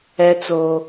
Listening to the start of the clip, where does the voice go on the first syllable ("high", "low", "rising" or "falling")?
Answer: high